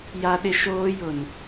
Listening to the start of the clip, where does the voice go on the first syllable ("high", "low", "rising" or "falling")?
high